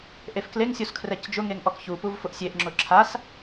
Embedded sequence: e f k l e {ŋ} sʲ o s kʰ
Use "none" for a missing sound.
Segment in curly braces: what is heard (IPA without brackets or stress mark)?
ŋ